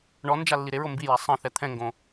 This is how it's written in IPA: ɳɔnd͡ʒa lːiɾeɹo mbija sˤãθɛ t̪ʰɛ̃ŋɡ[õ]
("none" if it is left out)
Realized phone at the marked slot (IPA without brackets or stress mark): õ